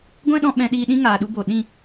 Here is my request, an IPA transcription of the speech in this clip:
ɡʷ ɛ̃˦ ɗ ɔ̃˧ ɓ ɛ̃˧ ɗ iː˧ ɗ ĩ˦ ŋ aː˨ ɗ u˧ b o˨ ɗ ĩ˦˨

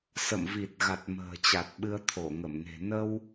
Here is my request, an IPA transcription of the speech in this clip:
s ə̰˧˨ m v i˨˩ t̚ ɣ a˨˩ t̚ m ə̤ː˨˩ t͡ɕ a˨˩ t̚ ɓ ɨ˧ ə̯ t̪ʰ o˧˩ ŋ ə˧˩ m n e̤˨˩ n ə˧ w

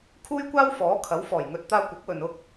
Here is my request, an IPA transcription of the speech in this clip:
kʰ uː˥ j kʷ aː˥ w f ɔː˨˥ kʰ ɐ˨˥ w f ɔː˨˩ j ŋ ɵ˧ t̚ t̪ aː˧ kʷ ɐ˨˥ k̚ w ɵ˨ n ʊ˥ k̚

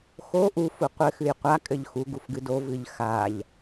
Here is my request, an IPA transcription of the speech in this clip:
x o ʔ u f u qʷ ɘ x ɨ j qʷ a kʼ ɘ ʎ x u ɡ u f ɡ ɨ d o v ɨ ʎ x a ʎ

